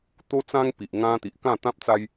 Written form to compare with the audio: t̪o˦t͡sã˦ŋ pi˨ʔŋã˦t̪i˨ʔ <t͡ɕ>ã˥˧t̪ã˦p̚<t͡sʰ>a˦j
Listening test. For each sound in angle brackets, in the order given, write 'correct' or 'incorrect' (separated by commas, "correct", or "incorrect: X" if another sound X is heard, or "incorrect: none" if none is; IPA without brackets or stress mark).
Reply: incorrect: k, incorrect: t͡s